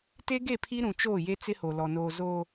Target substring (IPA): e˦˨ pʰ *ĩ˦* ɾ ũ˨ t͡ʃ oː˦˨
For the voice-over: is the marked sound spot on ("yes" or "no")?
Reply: no